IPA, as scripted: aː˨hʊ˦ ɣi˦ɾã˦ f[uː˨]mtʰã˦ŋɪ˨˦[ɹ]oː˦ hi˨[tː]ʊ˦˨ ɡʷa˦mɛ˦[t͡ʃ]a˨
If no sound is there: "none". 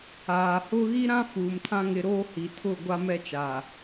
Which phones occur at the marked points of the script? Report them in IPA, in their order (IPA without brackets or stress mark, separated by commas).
uː˨, ɾ, tʰ, t͡ʃ